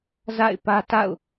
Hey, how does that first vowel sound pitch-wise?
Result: falling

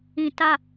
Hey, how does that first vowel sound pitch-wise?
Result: low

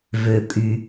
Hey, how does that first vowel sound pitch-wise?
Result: low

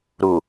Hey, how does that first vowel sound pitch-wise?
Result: low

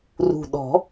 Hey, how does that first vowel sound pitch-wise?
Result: low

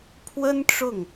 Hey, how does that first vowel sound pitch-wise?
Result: high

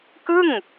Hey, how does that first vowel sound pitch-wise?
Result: falling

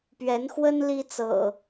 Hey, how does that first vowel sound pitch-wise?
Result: rising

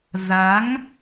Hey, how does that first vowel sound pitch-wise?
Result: rising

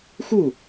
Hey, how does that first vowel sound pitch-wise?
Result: falling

